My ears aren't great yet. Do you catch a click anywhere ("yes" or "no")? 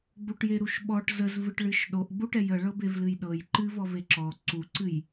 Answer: yes